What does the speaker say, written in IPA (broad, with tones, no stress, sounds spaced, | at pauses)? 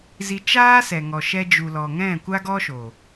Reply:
z i˧ t͡ʃ aː˦ s ɛ˨ ŋ ɔ˨ ʃ ɛ˧ d͡ʒ u˨ l ɔ˨ ŋ ɛ̃˦˨ kʷ a˦ ɡ ɔ˦ ʃ o˨